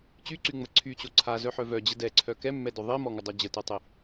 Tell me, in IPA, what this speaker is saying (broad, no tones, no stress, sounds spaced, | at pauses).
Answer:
t͡ɕ y ǀ y ŋ͡m ə ǀʰ y t͡ɕ o ǀʰ a z œ ħ œ v œ d͡ʑ ə d ɛ ǀʰ œ k ɛ mː ɛ d œ ðˤ i m ɔ ŋ ə dˤ œ d͡ʑ ə t e tˤ i